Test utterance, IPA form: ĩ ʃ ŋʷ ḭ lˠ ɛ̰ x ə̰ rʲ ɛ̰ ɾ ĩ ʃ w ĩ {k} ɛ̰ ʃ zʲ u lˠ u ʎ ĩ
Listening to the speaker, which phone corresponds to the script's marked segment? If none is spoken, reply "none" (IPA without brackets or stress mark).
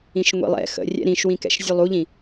k